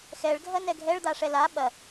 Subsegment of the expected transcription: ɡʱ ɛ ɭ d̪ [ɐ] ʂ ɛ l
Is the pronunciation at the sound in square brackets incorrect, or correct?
incorrect: a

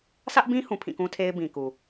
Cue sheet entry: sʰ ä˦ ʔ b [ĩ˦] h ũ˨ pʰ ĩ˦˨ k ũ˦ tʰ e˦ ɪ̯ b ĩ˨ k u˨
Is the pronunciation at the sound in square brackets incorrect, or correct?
correct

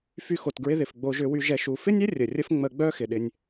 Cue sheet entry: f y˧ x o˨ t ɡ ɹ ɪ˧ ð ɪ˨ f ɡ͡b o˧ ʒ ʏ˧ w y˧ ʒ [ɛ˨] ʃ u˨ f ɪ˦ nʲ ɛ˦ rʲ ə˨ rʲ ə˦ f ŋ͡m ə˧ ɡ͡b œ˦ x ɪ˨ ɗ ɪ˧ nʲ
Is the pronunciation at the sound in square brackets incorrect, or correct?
correct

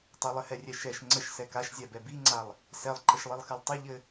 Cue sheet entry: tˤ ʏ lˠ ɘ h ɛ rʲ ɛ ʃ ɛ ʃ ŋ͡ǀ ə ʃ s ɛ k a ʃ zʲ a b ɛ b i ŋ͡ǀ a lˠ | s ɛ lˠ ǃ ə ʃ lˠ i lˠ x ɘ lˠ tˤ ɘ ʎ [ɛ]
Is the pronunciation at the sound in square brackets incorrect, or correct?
incorrect: ɘ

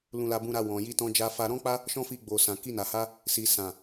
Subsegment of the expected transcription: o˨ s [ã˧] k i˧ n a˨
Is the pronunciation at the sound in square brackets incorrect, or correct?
incorrect: ã˨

